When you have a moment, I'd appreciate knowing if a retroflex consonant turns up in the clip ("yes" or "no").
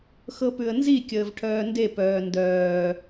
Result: yes